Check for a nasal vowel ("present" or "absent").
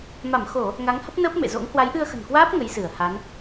absent